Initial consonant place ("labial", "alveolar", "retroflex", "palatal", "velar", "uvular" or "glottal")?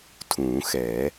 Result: alveolar